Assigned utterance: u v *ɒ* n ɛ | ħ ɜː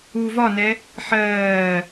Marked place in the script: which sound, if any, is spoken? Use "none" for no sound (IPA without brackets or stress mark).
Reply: ɒ